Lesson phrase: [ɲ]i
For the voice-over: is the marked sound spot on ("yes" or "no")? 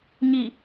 yes